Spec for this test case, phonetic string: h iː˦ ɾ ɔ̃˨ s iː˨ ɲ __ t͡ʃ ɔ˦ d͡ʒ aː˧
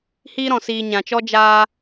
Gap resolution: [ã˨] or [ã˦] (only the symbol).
ã˨